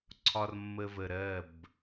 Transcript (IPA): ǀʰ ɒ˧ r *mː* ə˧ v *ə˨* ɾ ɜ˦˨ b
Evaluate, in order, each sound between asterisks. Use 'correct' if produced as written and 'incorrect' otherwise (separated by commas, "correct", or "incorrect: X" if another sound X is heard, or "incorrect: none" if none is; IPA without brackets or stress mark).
correct, correct